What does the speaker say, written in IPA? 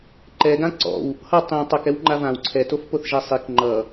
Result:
ǃ ɛ ɡ ã ǀ ɔ̰ w | h ʌ tˤ ĩ tˤ ʌ k ɛ w ŋ͡ǃ a v ã w ǀʰ ɛ t o f p o θ ʒ ɛ sˤ i k ŋ͡ǃ ʌ

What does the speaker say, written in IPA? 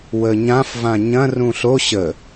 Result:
w ə ɲ ã f v ã ɲ ɐ̃ r ũ ɬ o ɕ ə

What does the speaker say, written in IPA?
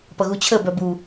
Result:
p ʌ ɣ u t͡ɕʰ ə b œ b u

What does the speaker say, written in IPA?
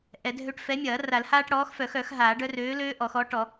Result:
ʔ ɛ˨˩˦ dʱ ø˦ ʈ f ɛ˨˥ mʲ ɐː˨˩˦ r a˨˩˦ l h aː˦ ʈ ɽ ɔː˨˥ x f œ˨˩˦ x œ˨˩˦ x ɦ aː˨˩˦ ɖ œ˦ r øː˨˥ l øː˦ ʔ ɔ˨˩˦ x ɔː˨˥ ʈ ɔ˨˩˦

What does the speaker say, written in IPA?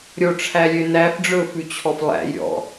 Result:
ɾʲ o ʈ͡ʂʰ æ lʲ ø n æ f ɖ͡ʐ ɵ f ʉ t͡ɕʰ ɔ f lˠ æ̰ j ɾʲ ɔ̰

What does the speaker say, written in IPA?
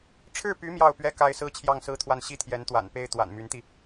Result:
ʈ͡ʂʰ ɻ̩˥˩ p y˧˥ m j ɑ˥˩ ʊ̯ p ɥ ɛ˥ k a˥ ɪ̯ s ɹ̩˥ t͡ɕʰ j ɑ˥˩ ŋ s ɹ̩˥ t̪ʰ w a˥˩ n ɕ i˥ t̪ʰ j ɛ˧˥ n t̪ w a̰˨˩ n p e˥ ɪ̯ t̪ w a̰˨˩ n m y˧˥ n t̪ i˧

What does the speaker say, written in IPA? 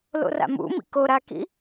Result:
l o̰ r a̰ m ṵ m ḭ k o ɾ a k ḭ

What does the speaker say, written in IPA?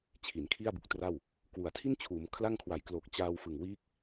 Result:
t͡ɕʰ i˩˦ n kʰ i˥˩ a̯ b u˨˩ k̚ t r a˥˩ w | k w u˩˦ a̯ tʰ i˥˩ n t͡ɕʰ uː˩˦ m kʰ l a˥˩ ŋ kʰ w a˨˩ j k l o˨˩ k̚ t͡ɕ aː˧ w f ɯ˨˩ ŋ w iː˦˥ k̚

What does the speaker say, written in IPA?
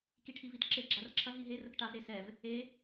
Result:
k i ʈʰ i v i t ǁ e ɡ͡ǁ a r ǁʰ ɐ ɦ i ɦ e r ə k ʈ a v ɾ e s ɛ v | e

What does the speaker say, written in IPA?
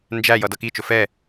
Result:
n d͡ʒ æ j ʌ d ʌ k i t͡ʃ ʊ f ɛ

